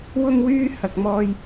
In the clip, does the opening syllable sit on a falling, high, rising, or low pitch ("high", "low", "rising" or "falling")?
high